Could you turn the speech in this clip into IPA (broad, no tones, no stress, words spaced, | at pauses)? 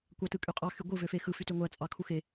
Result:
kʷɑtɯkʼyqʼɑ xyɡʷɯ vøfexɯ fytøŋʷæ t͡sʼɑkʰuxe